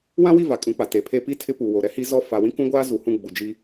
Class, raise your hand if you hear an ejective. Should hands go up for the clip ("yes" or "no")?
yes